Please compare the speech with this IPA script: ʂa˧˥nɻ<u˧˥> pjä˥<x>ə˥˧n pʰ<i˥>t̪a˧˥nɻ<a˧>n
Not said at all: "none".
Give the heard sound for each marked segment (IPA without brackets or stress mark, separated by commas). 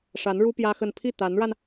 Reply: u˥, x, i˥˩, a˧